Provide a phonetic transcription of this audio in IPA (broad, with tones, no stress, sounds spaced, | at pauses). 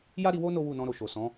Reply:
j a˦ ɾ i˧ w o˦ n o˦ w u˦˨ n ɔ̃˧ ɾ o˨ ʃ o˨ s ɔ̃˨˦